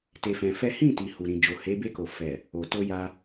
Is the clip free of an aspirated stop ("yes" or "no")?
yes